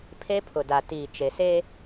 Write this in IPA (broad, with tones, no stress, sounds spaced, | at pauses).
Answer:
pʰ e˦ pʰ ʊ˨ d a˨ t iː˨ t͡ʃ e˨ s e˦